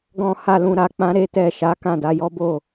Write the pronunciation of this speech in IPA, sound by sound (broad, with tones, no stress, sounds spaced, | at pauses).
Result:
ɡ ɔ̃˧ h a˧ l ũ˧ ɾ a˧ k͡p ã˦ ɾ e˦ t ɛ˦˨ ʃ a˨˦ k ã˦˨ d a˨˦ j ɔ˦ b o˦˨